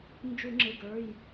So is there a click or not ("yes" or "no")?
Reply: yes